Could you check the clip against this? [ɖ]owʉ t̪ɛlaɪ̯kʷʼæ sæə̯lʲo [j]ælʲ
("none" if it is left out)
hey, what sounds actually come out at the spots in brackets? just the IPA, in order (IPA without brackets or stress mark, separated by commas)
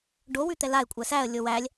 ɖ, w